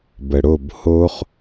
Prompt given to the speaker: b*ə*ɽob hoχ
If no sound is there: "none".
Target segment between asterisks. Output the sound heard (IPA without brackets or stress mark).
ə